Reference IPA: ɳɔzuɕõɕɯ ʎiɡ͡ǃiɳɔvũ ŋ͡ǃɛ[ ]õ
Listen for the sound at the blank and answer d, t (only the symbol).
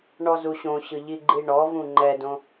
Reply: d